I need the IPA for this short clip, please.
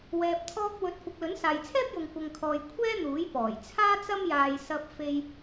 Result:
w ɛː˨ p̚ t̪ʰ ɔː˧ k̚ w ɵ˨˥ t̚ kʷ ɪ˨ k̚ l ɵ˨˥ n s aː˨ j t͡sʰ ɛː˥ p̚ j ʊ˧ ŋ kʷ ɐ˧ ŋ kʰ ɔː˧ j kʷʰ ɛː˥ n̪ uː˨˥ j p ɔː˨˩ j t͡sʰ aː˥ t͡s ɐ˥ m j aː˧ j s ɐ˥ p̚ f e˥ j

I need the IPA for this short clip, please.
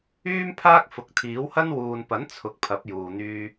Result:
yː˥ m pʰ aː˥ k̚ f ʊ˨ k̚ t̪ʰ iː˨˥ w h ɐ˥ n w uː˨ n p ɐ˨˥ n t͡sʰ ʊ˨˥ k̚ pʰ ɐ˨˥ p̚ j uː˨ n̪ yː˧

